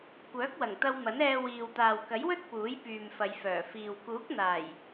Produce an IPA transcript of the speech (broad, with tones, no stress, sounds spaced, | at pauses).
kʷ œː˨˥ k̚ w ɐ˨˩ ŋ t̪ ɐ˧ w m ɐ˨˥ n ɛː˧ w iː˨ w t̪ aː˨ w k ɐ˨˥ j w ɵ˥ t̚ p uː˨˥ j p yː˨ m f ɐ˨˧ j f œː˨˩ f iː˨ w k uː˨˥ k̚ n̪ aː˨˩ j